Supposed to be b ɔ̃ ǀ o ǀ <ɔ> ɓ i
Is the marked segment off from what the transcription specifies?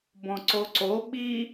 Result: yes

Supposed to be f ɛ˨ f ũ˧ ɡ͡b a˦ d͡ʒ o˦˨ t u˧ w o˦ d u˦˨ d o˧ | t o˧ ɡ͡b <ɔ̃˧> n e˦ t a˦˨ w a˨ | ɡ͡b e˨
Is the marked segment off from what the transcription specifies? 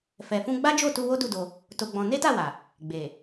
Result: no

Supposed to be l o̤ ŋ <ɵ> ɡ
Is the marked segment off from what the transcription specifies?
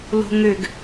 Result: yes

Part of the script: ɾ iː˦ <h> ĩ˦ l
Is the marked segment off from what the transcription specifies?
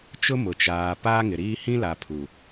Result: no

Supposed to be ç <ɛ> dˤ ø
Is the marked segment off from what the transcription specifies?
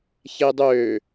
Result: yes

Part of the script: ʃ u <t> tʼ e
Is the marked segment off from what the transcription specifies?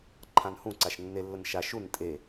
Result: yes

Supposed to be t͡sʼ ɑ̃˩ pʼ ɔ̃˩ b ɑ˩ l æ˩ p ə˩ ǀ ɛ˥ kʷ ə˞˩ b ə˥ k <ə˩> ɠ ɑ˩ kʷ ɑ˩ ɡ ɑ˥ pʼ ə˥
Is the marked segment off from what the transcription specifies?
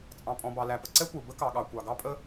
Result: yes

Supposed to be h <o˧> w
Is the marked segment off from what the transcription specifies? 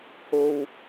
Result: no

